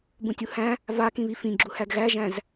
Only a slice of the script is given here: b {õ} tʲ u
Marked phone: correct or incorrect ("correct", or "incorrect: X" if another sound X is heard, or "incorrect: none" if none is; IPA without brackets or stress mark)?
incorrect: ũ